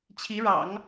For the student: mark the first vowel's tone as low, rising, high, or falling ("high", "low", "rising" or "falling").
rising